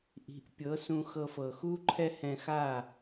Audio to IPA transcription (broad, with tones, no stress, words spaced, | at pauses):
ʔi̤˩˥ʔpʲɤ˩˥sũ˧ xɤ˧fɤ˩ xu˥ǃʰɛ˥hɛ̃˧xa˥˩